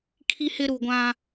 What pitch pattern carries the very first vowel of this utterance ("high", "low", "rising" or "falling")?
high